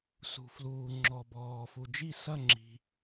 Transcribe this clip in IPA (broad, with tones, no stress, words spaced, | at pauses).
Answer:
sṳ˩fluː˩ŋ͡ǁɔ˩ bɔː˩ fu˩d͡ʒi˧˩ sɐ˧˩ŋ͡ǁi̤˩